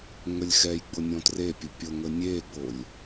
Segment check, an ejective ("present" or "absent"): absent